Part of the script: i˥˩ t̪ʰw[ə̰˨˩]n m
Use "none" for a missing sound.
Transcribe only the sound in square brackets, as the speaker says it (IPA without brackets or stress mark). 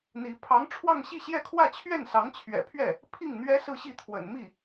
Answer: ə̰˨˩